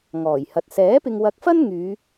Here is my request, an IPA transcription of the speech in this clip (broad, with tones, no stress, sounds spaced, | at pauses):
ŋ ɔː˨˩ j h ɐ˨ t̚ s ɛː˨˥ p ɪ˧ ŋ w ɐ˧ k̚ f ɐ˥ n ŋ yː˨˧